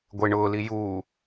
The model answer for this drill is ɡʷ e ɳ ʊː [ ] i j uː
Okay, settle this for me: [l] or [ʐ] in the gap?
l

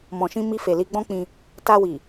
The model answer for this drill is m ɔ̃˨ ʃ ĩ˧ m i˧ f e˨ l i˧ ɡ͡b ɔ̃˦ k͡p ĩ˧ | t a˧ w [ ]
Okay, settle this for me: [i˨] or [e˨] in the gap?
i˨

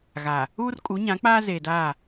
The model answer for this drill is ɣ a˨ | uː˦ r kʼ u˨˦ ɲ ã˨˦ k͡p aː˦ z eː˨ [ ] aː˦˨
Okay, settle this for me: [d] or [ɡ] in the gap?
d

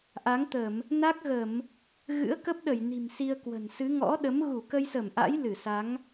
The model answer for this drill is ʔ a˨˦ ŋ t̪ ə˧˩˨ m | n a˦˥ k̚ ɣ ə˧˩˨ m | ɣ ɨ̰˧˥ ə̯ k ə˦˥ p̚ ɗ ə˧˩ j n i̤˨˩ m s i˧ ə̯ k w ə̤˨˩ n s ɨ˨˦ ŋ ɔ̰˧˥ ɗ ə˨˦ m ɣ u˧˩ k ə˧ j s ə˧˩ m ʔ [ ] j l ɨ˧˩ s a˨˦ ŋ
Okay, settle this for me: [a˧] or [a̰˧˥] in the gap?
a̰˧˥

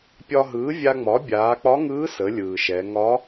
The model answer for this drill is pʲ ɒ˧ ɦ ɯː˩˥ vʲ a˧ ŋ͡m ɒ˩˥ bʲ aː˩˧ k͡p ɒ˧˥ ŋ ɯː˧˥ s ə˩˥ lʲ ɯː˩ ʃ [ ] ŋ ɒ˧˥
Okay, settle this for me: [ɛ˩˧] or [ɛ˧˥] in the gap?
ɛ˩˧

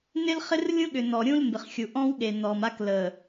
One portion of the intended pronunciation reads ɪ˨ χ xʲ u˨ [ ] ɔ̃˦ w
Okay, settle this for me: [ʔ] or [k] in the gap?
ʔ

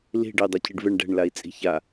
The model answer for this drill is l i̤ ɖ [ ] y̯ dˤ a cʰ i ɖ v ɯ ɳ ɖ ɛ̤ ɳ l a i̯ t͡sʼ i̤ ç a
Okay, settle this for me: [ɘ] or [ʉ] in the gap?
ɘ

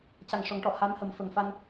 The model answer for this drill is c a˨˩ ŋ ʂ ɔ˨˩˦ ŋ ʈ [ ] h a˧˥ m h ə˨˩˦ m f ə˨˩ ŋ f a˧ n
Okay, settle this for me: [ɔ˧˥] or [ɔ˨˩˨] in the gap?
ɔ˨˩˨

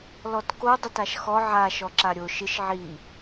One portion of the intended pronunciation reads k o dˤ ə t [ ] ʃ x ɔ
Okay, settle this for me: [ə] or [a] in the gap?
a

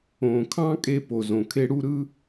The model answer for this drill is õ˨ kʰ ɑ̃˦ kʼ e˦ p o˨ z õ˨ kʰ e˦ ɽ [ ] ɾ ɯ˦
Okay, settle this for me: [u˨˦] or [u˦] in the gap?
u˦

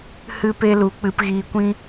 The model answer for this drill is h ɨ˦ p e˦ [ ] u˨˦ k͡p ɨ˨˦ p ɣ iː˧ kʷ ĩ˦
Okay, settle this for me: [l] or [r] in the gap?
l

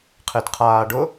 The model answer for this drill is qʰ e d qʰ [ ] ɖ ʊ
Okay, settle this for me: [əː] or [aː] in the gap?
aː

